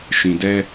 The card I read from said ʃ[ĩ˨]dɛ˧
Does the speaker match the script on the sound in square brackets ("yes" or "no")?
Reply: yes